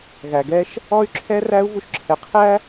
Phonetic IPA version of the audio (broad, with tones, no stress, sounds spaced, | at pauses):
ɣ æ˧ ɡ ɛ˥ ʃ | ɔ˥ y̯ ǁʰ ɛ˥ r æ˥ u̯ v u˥ ʃ ǁʰ ɛ˧ qʰ æ˥